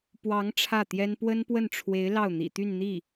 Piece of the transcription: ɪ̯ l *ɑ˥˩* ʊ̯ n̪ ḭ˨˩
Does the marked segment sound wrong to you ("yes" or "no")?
no